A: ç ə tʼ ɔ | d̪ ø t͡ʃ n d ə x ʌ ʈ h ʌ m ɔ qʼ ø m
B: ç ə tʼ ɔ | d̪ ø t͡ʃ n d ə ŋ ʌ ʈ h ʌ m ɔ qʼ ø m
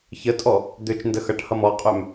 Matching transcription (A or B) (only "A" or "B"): A